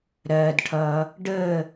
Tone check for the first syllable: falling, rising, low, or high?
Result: low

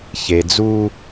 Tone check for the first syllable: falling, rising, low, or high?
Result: low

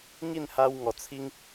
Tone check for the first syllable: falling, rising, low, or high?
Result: falling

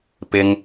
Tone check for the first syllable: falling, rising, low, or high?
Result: high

